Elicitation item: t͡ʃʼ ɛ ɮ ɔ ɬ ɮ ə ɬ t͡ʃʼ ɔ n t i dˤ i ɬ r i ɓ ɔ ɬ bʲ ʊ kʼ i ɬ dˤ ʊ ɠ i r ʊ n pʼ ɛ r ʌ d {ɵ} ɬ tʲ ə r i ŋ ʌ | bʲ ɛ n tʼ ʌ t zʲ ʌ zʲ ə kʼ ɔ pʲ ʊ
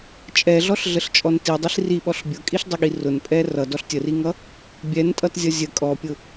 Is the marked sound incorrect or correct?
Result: incorrect